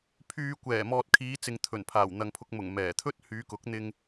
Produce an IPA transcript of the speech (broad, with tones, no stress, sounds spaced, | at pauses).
pʰ yː˧ kʷ ɛː˨˩ m ɔː˨ t̚ kʰ iː˨˧ t͡s ɪ˨ ŋ t̪ʰ ɵ˨˩ n pʰ aː˨˩ w n̪ ɐ˨ ŋ pʰ ʊ˧ k̚ m ʊ˨˩ ŋ m ɛː˨˩ t̪ʰ ɵ˥ t̚ h yː˨˧ k ʊ˨˥ k̚ n̪ ɪ˧ ŋ